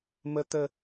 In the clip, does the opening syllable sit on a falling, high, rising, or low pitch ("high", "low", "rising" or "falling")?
high